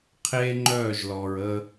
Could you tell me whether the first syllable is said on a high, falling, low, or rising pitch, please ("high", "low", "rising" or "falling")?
high